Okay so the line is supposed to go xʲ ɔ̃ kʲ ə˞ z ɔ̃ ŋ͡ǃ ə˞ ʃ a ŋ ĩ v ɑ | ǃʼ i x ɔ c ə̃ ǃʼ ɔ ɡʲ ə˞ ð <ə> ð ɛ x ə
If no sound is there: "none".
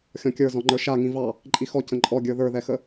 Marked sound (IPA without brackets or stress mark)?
ə˞